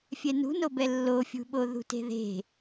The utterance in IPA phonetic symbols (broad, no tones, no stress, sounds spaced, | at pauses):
fʲ ɛ n ṳ n o b ɛ lː o fʲ ṳ ɓ o ð ṳ t e̤ ð e̤